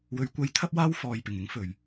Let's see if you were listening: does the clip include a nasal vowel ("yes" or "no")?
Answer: no